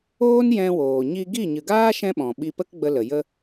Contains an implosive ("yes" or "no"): yes